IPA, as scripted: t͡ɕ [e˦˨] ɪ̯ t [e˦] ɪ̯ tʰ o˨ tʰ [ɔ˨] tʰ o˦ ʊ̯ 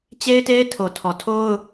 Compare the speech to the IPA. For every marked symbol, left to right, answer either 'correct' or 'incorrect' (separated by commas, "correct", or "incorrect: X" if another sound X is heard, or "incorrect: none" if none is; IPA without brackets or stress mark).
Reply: incorrect: e˦, correct, correct